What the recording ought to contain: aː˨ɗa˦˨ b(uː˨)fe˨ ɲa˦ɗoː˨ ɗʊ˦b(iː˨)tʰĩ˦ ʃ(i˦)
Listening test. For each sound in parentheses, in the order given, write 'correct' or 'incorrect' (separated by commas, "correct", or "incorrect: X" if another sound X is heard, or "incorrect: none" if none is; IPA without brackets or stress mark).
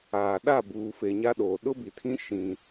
correct, incorrect: i˨, incorrect: ĩ˦